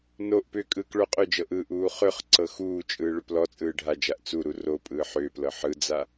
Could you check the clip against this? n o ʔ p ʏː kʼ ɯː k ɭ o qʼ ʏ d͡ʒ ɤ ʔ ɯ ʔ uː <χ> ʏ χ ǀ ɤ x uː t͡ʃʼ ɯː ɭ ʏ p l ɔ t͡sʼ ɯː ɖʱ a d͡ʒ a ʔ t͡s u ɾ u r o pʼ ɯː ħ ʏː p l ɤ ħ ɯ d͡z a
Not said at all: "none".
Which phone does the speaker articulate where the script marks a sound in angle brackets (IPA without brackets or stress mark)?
χ